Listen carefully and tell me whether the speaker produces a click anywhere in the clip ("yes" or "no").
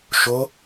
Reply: no